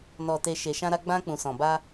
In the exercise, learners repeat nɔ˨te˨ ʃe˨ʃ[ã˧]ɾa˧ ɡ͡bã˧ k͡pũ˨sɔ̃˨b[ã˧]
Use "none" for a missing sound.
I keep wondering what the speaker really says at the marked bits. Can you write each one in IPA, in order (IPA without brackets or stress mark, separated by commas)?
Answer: ã˧, a˧